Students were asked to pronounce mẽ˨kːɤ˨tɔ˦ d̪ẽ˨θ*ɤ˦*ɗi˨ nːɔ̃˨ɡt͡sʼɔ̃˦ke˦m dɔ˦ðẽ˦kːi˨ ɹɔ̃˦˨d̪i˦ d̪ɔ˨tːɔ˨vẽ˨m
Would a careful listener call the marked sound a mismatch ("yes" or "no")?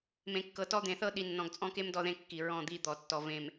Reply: no